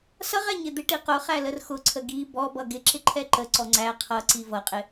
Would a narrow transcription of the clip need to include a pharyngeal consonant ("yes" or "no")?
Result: no